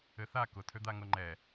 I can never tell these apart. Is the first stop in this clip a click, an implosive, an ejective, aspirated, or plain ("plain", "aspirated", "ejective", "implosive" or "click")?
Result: plain